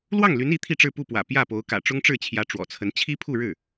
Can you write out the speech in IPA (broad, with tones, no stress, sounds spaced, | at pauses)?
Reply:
l w ɑ˥˩ ŋ l y˧˥ n i˧˥ t̪ʰ i˥˧ ʈ͡ʂ ɻ̩˥˧ p u˥˩ p w ä̰˨˩ p j ä˥˩ p o˧˥ ʊ̯ k ä̰˨˩ ʈ͡ʂ ʊ˥ ŋ ʈ͡ʂ ɻ̩˥˩ t͡ɕʰ j ä˧˥ ʈ͡ʂ w ɔ̰˨˩ t͡sʰ ə˧˥ n t͡ɕʰ i˥ pʰ u˥˧ ɻ ɻ̩˥˩